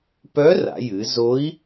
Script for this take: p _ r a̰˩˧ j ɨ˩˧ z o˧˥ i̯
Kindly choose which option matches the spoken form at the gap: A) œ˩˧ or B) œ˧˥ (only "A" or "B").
B